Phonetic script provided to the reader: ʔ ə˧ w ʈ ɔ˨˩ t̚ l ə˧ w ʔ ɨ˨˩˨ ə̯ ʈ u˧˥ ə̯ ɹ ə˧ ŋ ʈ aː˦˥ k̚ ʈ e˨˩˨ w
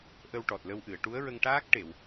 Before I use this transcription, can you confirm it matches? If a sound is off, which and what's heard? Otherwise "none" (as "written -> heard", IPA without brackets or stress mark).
none